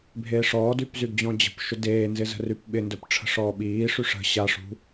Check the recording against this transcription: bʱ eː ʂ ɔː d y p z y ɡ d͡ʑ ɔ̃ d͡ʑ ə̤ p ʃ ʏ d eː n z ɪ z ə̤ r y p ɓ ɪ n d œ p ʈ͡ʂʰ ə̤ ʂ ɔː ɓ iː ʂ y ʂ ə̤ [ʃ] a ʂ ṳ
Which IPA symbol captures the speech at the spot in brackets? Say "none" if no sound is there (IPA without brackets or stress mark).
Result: ɕ